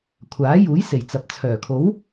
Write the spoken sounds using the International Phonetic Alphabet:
kʷʰaː˨˥juː˨˥j se˨˩jt͡sɐ˨p̚t͡sʰœː˨˩ kʰo˨˥w

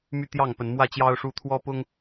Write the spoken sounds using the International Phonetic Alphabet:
my˥˨t̪jɑ˥˨ŋpə˨˦n mwä˥˨t͡ɕjɑ˦ʊ̯ ʂu˥˨ t̪ʰwɔ˦pʊ˦ŋ

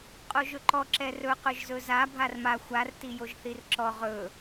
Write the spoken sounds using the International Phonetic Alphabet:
qʼoʒɵǃɔ ǁɛrɵ qɵʒzɵza bʱarma xʷar tijoʒθirǁɔ ʁɵ

